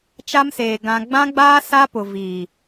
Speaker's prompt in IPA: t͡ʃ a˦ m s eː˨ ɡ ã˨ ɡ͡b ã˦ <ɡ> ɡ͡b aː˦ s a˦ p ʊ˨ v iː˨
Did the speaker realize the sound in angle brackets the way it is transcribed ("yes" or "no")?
no